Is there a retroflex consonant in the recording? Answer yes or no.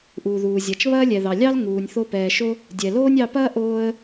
no